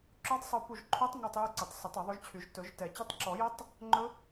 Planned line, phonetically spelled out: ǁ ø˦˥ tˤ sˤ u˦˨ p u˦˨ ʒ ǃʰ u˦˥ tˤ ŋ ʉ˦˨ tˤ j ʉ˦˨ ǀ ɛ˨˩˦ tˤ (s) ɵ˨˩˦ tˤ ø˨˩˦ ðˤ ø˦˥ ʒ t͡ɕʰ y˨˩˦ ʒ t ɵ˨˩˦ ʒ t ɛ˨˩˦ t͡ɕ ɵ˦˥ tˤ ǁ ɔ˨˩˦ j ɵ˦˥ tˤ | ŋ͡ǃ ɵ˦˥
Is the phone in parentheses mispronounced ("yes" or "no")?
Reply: no